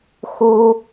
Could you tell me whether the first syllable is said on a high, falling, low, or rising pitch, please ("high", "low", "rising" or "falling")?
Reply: high